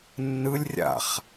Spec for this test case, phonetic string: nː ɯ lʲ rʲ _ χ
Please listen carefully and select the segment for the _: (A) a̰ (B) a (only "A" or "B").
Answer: A